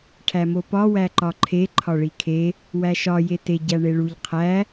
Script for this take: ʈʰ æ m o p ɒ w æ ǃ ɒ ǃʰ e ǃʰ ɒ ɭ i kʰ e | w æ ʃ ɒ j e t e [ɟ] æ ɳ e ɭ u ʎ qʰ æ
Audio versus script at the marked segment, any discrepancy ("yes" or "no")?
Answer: no